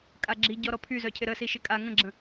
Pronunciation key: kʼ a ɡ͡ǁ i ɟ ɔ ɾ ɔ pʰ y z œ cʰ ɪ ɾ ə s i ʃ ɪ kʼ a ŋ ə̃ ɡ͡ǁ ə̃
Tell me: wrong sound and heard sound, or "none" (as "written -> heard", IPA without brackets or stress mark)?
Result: none